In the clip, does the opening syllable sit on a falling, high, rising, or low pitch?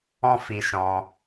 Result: high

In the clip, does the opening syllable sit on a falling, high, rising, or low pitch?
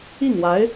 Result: falling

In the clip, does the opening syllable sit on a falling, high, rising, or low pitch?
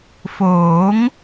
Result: rising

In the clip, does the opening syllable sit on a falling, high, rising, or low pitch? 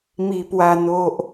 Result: low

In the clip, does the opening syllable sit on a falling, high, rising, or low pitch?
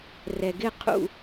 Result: low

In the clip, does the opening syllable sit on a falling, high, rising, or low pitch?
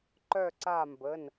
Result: falling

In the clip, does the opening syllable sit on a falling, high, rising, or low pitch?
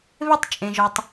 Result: high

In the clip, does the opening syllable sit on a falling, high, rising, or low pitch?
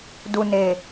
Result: low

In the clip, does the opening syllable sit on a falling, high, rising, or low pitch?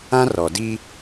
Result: high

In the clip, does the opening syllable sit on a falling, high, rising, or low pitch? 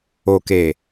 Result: low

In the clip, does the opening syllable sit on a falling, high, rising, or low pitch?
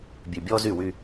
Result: low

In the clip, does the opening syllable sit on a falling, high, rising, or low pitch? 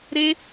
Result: high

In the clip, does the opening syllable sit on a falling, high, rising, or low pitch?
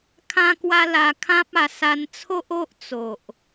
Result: high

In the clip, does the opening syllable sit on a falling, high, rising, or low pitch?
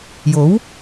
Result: rising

